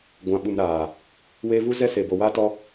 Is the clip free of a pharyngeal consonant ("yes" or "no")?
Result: yes